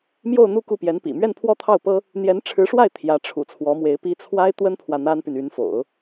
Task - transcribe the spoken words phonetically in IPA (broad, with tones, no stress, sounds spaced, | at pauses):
m j o˥˧ ʊ̯ n̪ u˥˧ k u˥˩ p j ɛ˧˥ n p ḭ˨˩ m ɥ ɛ˥˧ n pʰ w ɔ˥˧ t̪ʰ ɑ˥˩ ʊ̯ p ɤ˥ | n̪ j ɛ˧˥ n ʈ͡ʂʰ ɻ̩˧˥ ʂ w a˥˩ ɪ̯ t̪ʰ j ä˧˥ ʈ͡ʂʰ ṵ˨˩ t͡sʰ w ɔ˧˥ m w e˧˥ ɪ̯ p i˥ t͡sʰ w a˥ ɪ̯ t̪ w ə˥ n pʰ w ä˨ n̪ a˥ n p y˨ n y˧˥ n f o̰˨˩˦ ʊ̯